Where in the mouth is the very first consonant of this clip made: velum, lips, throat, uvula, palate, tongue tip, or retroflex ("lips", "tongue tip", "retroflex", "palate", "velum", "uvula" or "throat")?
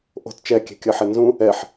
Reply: throat